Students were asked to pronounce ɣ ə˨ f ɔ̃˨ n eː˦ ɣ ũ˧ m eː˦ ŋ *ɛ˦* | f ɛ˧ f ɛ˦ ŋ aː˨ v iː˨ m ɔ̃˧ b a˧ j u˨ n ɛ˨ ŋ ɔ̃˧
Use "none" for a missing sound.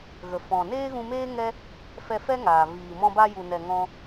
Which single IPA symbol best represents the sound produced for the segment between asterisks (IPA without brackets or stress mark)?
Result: ɛ˦